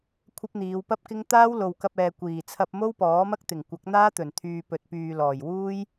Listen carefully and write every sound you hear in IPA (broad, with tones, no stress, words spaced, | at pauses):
kʷʰɐ˥p̚n̪iː˨˧w pɐ˥p̚kɪ˥ŋ t̪aː˥wlo˨wkɐ˧p̚ɛː˨ kʷiː˨˩t͡sʰɐ˧p̚mo˥w pɔː˨˥mɐ˥k̚t̪ɪ˨˩ŋ kʷɐ˨˥k̚n̪aː˥t̪ɵ˨˩nt̪ʰyː˨ pɵ˨t̚pyː˨lɔː˨˩j wuː˥j